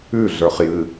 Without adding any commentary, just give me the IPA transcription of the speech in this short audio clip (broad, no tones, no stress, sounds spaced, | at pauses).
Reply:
ʉ ɮ ə˞ χ j ɨ